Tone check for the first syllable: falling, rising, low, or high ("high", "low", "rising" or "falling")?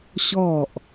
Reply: falling